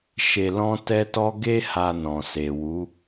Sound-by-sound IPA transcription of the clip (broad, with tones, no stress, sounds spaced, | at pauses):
ʃ e˧ l ɔ̃˦ t ɛ˦ t ɔ˦ ɡ e˦ h a˧ n ɔ̃˨ s e˨ w u˨˦